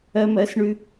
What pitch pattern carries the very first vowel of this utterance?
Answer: high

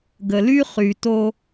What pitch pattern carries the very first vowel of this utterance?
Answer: low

